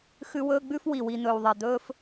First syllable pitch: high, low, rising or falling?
high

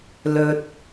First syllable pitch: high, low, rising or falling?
low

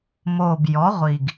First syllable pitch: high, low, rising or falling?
low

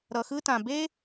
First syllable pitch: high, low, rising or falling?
low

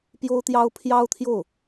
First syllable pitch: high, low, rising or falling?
high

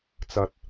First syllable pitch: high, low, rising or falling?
low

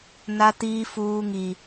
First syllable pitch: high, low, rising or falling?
high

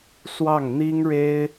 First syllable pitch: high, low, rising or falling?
falling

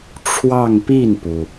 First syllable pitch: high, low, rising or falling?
falling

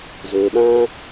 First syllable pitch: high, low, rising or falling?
low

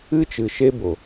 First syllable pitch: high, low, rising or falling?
high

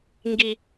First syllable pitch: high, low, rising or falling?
low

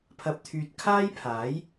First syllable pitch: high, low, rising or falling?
low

